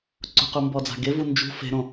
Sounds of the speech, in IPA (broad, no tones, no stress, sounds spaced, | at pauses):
ǀ ṳ q u m b ɔ d͡z a̤ ɡ e v u n d͡ʒ ṳ f e̤ ɾ õ